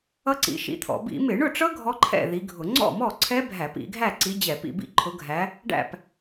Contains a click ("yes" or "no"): yes